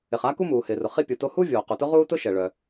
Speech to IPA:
ɪ˩ χ a˥ k u˥ m uː˩ h ɪː˩ r ʊ˩ χ i˥ pʲ u˩ t o˥ h u˥ vʲ oː˩ q u˩ t ʊ˥ ʁ uː˥ t ʊ˥ ʃ ɛ˩ ɭ œ˩

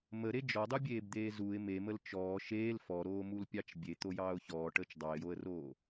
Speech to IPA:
m ə ɾ e d͡ʒ ɔ dˤ u bʲ eː b d̪ eː z u ɪ̯ m e m ə l t͡ʃ ɔː ʃ eː l f ɔ ɾ oː m u l pʲ ɑ t͡ʃ bʲ e t̪ o j ɑː ʊ̯ ç ɔː ʈ əː t͡ʃ dˤ ɑ ɪ̯ j o ə̯ r oː

